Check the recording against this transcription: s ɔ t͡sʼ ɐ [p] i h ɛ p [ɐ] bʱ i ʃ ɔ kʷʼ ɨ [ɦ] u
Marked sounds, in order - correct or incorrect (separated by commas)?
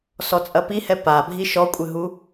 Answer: correct, incorrect, correct